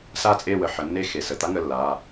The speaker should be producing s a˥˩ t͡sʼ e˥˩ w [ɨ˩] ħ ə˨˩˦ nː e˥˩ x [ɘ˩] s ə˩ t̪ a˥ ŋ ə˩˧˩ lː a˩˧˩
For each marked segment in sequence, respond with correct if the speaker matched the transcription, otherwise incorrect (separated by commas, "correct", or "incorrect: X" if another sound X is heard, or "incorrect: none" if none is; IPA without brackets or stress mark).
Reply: incorrect: ə˩, incorrect: e˩